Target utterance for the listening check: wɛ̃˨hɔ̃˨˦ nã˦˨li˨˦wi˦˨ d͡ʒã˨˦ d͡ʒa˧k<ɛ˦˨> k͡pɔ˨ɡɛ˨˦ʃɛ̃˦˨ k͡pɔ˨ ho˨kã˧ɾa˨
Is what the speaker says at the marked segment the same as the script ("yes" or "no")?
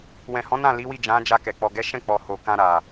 no